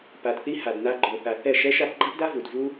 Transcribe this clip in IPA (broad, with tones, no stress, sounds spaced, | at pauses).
p a˨ d θ i˧ h a˨ d n a˧ ɡ͡ǃ o˨ θ a˨ θ ɛ˦˨ ʃ ɛ˦ ʃ a˦ p ɡ͡ǃ a˦ p d a˦ v u˨ d v u˦